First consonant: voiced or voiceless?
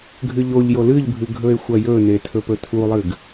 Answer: voiced